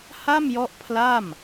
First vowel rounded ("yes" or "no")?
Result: no